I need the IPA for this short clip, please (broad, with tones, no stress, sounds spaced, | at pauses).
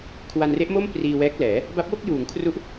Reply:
kʰ w a˧ n r e˦˥ ʔ m o˥˩ m p r iː˧ w ɛː˦˥ k̚ l ɛː˩˦ | b a˦˥ p̚ w o˥˩ k̚ j uː˩˦ ŋ kʰ r u˦˥ ʔ